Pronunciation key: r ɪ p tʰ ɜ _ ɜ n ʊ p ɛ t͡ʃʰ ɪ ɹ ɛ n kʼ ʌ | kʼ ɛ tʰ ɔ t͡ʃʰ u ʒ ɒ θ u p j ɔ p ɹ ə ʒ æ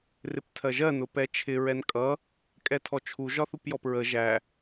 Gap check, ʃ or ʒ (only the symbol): ʒ